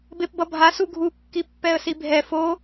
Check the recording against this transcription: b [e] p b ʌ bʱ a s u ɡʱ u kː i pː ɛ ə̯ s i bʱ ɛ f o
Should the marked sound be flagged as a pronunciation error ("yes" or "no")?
no